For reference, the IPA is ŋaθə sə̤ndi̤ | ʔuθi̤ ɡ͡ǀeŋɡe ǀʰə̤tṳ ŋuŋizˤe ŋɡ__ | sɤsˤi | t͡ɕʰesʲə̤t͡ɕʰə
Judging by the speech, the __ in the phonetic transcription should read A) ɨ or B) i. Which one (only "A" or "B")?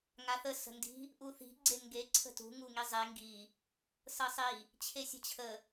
B